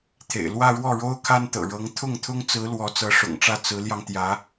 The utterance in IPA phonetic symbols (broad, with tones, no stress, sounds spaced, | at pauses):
t̪ʰ ḛ˨˩ ɪ̯ l w ä˥˧ ɻ w ɔ˥˩ ɻ o˥ ʊ̯ kʰ a˥ n t̪ ɤ̰˨˩ ɻ ɤ˧˥ ŋ t̪ʰ ʊ˥˩ ŋ t̪ʰ ʊ˥ ŋ t͡s ɹ̩˧˥ l w ɔ˧˥ t͡s ɤ˧˥ ʂ ʊ̰˨˩ ŋ ʈ͡ʂ ä˥˩ t͡s ɹ̩˧˥ l j ɑ˧ ŋ t̪ j ä˧˥